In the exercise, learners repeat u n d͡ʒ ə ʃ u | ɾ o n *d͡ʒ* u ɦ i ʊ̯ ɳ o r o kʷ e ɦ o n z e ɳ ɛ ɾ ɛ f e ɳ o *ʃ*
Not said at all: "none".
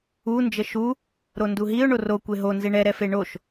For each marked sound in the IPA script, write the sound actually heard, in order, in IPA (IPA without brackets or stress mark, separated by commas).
d, ʃ